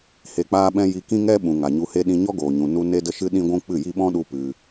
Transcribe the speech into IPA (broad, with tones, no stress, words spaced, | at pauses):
he˧k͡paː˦ɓɛ̃˦ ji˧kĩ˦ ŋɛ˦ɓũ˨ ŋa˨ɲu˧he˦ ɗĩ˧ɲɔ˦ɡoː˨ɲũ˨ nu˧ ne˦də˦ʃɨ˦ ɗĩ˦ɡʷũ˦ k͡pɨ˦˨ji˦ ɓɔ̃˦ɗu˧ pɨ˧